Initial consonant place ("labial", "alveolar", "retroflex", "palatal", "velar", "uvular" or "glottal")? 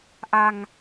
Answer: glottal